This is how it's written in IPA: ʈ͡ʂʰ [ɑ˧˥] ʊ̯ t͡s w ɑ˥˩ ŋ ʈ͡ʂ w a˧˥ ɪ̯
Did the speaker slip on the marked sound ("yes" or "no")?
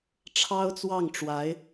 yes